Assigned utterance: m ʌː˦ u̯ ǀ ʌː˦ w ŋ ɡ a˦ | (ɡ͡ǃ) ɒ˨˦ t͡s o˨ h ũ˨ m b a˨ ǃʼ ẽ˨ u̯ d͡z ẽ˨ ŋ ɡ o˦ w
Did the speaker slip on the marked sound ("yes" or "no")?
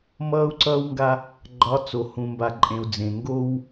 no